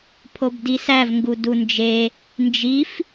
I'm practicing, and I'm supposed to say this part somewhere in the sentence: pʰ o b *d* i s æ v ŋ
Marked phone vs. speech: correct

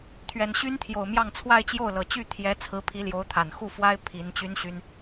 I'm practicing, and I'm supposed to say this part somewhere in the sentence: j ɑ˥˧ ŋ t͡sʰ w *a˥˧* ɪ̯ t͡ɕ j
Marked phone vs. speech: correct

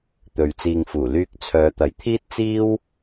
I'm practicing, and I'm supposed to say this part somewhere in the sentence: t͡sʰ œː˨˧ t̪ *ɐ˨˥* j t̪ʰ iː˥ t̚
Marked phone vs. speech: correct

